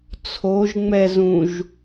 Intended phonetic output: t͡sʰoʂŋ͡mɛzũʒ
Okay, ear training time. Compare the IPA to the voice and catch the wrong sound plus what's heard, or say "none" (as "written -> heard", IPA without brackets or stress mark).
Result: ʂ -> ʒ